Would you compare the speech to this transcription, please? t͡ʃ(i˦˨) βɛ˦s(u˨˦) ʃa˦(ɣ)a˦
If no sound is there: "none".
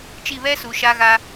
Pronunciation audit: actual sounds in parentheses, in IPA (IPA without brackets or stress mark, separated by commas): i˦˨, u˨, ɣ